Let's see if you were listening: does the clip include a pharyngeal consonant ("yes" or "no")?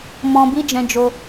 no